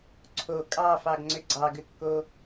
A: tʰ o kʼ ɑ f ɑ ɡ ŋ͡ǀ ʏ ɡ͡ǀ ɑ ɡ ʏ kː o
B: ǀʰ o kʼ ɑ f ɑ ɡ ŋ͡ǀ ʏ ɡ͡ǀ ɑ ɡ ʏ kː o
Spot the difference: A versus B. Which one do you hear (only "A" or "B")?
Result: B